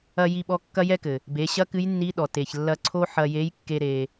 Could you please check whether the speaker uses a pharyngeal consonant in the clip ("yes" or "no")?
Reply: yes